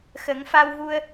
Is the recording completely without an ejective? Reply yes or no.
yes